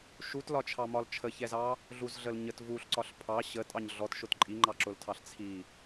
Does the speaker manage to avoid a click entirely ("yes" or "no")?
no